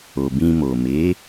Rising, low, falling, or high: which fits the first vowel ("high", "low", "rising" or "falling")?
low